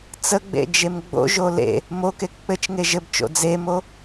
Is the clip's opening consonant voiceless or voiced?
voiceless